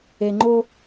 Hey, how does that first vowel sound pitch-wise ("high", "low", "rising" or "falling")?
low